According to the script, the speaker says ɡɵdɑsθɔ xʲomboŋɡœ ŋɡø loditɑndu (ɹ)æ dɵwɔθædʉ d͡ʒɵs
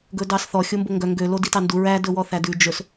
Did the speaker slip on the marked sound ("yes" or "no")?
no